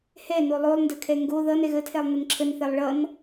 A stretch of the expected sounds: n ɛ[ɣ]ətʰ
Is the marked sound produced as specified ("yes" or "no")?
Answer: yes